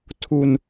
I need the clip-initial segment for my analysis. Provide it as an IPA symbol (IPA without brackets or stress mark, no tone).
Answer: tʰ